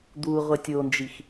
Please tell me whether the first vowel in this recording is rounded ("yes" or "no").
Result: yes